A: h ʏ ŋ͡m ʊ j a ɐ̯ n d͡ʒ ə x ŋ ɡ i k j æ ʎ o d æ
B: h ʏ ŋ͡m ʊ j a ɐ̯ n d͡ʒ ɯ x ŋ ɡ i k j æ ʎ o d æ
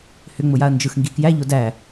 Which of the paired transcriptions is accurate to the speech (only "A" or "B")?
B